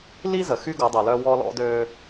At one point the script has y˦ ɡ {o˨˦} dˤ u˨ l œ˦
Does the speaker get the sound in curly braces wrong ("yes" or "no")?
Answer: no